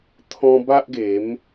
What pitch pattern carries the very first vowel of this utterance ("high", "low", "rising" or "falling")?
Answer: high